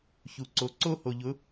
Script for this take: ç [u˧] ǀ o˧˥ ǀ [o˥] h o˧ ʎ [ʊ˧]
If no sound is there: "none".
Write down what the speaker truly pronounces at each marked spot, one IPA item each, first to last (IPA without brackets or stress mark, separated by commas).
u˧, o˥, ʊ˧˥